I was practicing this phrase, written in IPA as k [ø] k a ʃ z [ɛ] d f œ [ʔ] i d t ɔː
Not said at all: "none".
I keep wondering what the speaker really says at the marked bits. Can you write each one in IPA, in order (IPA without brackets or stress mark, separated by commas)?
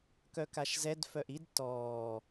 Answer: œ, ɛ, ʔ